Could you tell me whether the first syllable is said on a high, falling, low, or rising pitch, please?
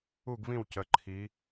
falling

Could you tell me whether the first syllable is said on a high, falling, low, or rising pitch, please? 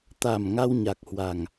low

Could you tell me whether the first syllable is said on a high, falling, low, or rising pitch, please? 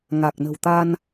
low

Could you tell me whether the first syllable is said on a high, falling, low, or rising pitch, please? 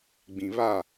low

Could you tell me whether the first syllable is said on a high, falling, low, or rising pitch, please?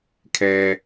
low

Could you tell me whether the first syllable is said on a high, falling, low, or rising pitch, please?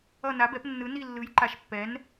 falling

